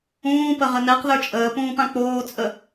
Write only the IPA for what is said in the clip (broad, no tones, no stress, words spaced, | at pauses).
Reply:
ũː pəʁənɛq ðə˞t͡ʃʼəː pũːpãk͡poː t͡sʼə